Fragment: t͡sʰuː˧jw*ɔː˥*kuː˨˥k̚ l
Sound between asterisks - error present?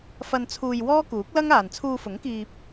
no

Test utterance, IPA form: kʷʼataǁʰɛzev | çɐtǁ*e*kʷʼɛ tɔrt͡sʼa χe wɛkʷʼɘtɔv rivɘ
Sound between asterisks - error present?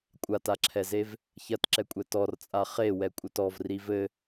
yes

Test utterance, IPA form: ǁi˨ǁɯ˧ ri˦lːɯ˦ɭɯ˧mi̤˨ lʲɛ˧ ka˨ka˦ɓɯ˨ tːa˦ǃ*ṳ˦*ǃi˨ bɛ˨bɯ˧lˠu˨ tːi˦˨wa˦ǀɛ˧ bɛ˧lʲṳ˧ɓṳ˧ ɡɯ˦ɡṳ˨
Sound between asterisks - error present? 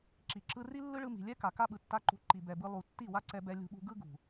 yes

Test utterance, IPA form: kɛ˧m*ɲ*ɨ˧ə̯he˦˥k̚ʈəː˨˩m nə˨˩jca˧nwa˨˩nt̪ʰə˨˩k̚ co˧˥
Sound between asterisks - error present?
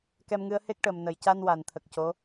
yes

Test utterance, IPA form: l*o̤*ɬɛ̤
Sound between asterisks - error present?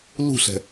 yes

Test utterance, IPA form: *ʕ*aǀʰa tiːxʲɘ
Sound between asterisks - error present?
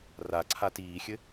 yes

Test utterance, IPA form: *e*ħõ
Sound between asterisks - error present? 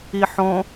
yes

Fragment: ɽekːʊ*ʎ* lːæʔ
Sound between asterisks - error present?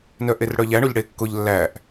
no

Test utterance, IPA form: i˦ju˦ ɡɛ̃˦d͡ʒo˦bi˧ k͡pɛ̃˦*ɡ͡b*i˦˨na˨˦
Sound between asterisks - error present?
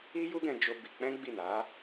no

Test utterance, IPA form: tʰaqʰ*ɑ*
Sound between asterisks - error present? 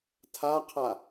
yes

